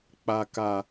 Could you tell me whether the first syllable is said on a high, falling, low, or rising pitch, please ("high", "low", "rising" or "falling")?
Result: low